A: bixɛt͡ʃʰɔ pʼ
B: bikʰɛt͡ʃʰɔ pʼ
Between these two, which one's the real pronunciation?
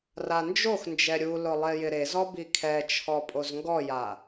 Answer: B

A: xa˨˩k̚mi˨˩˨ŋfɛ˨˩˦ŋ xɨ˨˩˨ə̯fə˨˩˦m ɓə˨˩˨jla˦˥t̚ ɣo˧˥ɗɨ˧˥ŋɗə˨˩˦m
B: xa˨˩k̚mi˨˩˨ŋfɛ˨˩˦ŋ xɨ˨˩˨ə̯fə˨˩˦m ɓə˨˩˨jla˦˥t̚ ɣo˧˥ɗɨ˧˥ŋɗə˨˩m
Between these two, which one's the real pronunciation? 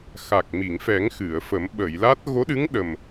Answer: B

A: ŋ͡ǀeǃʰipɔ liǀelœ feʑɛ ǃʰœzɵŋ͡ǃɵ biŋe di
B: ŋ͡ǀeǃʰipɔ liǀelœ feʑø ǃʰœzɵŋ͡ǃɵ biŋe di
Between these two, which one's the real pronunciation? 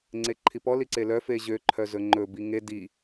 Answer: B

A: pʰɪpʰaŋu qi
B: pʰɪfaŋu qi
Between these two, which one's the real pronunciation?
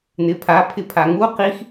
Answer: A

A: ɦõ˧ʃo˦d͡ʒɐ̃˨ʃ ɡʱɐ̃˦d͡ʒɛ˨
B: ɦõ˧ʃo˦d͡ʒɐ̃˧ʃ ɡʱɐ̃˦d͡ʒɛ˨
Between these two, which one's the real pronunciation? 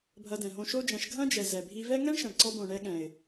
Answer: B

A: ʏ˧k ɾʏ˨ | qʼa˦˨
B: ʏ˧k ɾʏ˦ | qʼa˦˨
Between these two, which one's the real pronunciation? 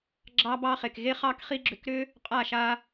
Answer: B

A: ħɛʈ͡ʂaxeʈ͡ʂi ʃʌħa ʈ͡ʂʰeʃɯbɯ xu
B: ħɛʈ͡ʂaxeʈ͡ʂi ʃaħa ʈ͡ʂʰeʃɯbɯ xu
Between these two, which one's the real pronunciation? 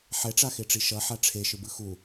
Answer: A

